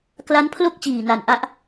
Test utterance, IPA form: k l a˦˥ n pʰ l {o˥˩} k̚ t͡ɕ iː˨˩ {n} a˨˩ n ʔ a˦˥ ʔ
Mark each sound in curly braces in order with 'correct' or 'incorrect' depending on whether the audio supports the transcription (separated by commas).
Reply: correct, correct